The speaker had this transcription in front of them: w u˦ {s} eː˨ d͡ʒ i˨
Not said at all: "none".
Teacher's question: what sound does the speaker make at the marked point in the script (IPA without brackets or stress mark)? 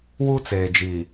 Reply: t͡s